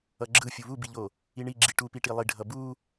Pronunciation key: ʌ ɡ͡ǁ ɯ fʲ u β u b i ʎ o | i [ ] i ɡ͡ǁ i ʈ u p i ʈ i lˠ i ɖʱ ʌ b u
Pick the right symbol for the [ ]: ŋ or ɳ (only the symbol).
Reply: ɳ